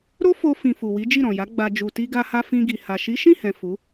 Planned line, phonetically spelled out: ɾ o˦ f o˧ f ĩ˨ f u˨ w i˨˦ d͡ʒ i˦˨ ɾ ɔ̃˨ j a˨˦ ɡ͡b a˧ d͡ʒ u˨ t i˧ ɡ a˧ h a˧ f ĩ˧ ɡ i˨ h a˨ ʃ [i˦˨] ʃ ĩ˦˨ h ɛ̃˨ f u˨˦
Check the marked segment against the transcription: incorrect: i˨˦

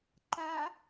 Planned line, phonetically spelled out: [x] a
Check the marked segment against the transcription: incorrect: ǃ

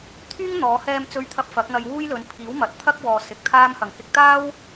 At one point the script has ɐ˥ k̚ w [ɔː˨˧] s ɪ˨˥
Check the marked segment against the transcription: incorrect: ɔː˨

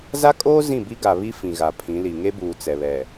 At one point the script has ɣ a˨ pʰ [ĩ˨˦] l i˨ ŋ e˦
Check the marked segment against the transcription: correct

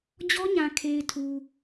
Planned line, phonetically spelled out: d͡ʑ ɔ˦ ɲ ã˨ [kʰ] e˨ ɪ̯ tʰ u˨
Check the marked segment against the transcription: correct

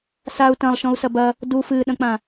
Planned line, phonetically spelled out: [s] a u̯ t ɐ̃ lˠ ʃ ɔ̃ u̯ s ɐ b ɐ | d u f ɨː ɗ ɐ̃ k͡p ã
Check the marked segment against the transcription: correct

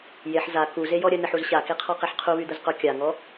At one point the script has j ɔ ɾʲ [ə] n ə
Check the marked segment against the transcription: correct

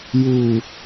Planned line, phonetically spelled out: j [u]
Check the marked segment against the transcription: correct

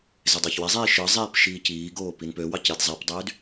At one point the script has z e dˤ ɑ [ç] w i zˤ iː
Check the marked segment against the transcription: correct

